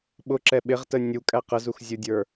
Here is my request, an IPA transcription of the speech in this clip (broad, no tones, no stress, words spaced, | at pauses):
ɓʊǁɛ ɓɪʁtə nʲukʼæ qəzuxzʲudʲə˞